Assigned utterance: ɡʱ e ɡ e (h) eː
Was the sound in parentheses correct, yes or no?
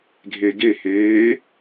yes